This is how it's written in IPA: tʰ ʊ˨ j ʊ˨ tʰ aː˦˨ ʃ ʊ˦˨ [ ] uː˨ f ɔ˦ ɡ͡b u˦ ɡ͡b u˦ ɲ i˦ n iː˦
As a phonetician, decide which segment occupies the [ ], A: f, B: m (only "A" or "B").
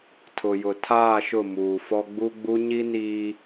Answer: B